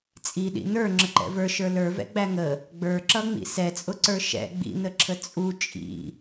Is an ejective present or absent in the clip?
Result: present